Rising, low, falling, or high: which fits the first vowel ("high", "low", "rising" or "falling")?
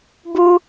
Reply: high